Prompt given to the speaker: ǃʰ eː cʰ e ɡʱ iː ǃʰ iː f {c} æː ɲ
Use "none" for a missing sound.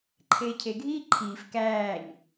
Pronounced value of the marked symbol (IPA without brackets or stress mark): k